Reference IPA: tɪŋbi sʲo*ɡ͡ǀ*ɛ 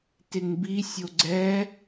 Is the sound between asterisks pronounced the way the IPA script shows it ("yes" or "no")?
yes